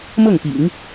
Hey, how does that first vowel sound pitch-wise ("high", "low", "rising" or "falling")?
falling